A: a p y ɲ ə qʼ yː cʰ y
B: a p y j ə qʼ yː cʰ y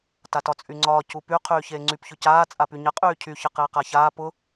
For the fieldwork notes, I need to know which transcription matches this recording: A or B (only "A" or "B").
A